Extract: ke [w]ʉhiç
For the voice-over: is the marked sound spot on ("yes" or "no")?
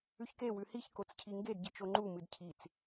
yes